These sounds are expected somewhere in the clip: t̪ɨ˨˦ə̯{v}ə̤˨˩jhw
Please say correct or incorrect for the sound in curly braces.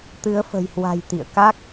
incorrect